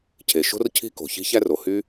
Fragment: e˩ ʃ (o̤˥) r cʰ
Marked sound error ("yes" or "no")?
no